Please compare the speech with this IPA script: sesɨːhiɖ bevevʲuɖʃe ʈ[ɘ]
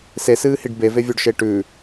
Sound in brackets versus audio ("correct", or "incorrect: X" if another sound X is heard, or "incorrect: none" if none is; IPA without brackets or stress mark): incorrect: ʉ